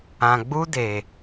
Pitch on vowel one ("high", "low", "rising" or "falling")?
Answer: low